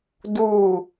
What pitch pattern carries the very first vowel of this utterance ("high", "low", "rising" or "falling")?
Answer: falling